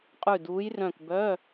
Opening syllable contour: falling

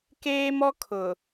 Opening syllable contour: high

